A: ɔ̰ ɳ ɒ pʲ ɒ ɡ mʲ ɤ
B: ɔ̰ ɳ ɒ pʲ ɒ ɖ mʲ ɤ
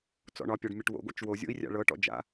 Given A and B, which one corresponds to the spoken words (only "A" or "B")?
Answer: B